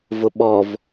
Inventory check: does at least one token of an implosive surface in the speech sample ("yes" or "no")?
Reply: yes